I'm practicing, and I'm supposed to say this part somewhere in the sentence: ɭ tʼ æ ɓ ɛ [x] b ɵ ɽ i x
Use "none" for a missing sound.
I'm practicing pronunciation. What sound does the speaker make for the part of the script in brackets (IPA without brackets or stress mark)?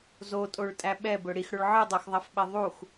none